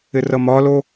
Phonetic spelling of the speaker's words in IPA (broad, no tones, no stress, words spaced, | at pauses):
ɪrʌmɒlo